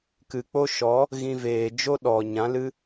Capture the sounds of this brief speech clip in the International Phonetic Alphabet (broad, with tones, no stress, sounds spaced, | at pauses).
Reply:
k ɨ˨ k͡p o˦ ʃ ɔ˨˦ | ɣ ĩ˧ v eː˨ d͡ʒ o˦ ɗ ɔ˨ ɲ ã˨˦ l ɨ˦